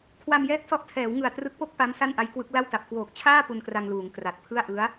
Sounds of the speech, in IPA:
kʰ w a˧ m j ɛː˦˥ k̚ s ɔ˦˥ ʔ tʰ ɛː˩˦ w ŋ ɯ˨˩ a̯ t r ɯ˦˥ k̚ p o˥˩ k̚ p a˦˥ m s a˥˩ n ʔ a˦˥ j k w ɯ˦˥ k̚ l a˥˩ w t a˨˩ p̚ k w oː˨˩ k̚ t͡ɕʰ aː˥˩ p u˧ n k r a˧ ŋ l uː˩˦ ŋ k r a˨˩ t̚ pʰ ɯ˥˩ a̯ ʔ ɯ˦˥ a̯

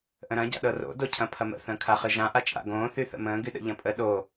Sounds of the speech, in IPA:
ʔ ə̃ ɾ ɐ̃ ɟ a̰ ɗ ɤ r o̰ d o cʰ ɐ̃ pʰ ɐ m ə̰ θ ə̃ː kʰ a χ ɨ ʒ ã ʔ a t͡ʃʼ a̰ ɡ õː θ y θ ə̰ m ə̃ː ɡ y ɗ ə̰ ʎ ɐ̃ pʼ ə ɗ o

